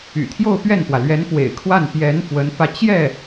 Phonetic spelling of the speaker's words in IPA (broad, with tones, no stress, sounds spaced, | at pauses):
y̰˨˩ t̪ʰ j o˥˧ ʊ̯ p ɥ ɛ˥˩ n p w ä˩ l ɥ ɛ˧˥ n f w ḛ˨˩ ɪ̯ kʰ w a˥˩ n p j ɛ˧˥ n f w ə˧˥ n f ä˧ t͡ɕ j ɛ˥˩